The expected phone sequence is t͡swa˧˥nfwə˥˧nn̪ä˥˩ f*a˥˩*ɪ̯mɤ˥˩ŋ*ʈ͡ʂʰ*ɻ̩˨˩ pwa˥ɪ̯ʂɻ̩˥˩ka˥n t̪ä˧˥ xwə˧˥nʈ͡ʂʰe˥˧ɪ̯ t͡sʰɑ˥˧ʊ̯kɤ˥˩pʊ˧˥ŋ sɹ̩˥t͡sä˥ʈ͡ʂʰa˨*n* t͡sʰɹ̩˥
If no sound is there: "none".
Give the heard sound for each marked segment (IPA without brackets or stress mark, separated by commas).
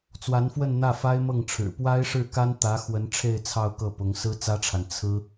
a˥, ʈ͡ʂʰ, n